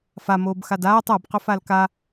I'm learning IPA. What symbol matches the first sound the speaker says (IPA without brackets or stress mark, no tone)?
f